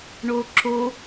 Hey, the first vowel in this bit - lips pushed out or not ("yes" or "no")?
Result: yes